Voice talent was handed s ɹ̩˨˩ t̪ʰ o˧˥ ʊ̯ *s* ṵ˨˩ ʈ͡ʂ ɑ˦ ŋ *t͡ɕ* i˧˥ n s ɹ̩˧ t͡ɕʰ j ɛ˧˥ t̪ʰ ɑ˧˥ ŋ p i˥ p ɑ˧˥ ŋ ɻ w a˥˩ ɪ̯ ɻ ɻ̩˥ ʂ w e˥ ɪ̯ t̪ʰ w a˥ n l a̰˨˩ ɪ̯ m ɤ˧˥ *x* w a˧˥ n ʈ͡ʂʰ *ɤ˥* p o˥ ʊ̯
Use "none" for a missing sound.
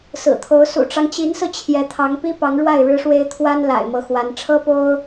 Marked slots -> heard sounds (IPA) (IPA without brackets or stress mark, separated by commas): s, t͡ɕ, x, ɤ˥